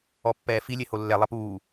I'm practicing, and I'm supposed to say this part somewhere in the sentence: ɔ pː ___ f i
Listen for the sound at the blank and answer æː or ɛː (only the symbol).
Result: ɛː